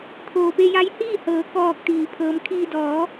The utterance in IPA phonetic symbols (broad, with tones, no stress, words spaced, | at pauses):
t̪ʰoː˩pe˧ja˧˥j hiː˥˨hɤː˩˧ kɔː˧k̚t̪iː˩ pʰɤː˩˧mkʰiː˧ dɔː˩˧